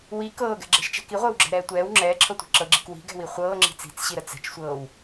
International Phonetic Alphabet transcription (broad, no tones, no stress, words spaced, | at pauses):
wi kɤːɡɛ̤ɡ͡ǁɛ̤ʃt͡ʃɛ̤ kiʁʷəːwɡ͡ǁɛ̤ɾɛː tʷɛːw ŋ͡ǁɛːǁʰɤtʷi̤ ǁɤɡ͡ǁi̤k wi̤ɡɛ̤wi χʷɤːŋ͡ǁi̤ t͡si̤t͡sɕiɾə t͡sɛ̤t͡ʃsʷɤːw